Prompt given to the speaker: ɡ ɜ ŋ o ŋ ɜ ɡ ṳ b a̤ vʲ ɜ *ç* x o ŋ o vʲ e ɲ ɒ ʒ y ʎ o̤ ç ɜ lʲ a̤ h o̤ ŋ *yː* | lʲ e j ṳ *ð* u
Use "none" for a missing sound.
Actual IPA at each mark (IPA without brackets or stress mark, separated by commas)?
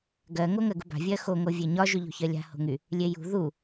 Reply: none, y, ð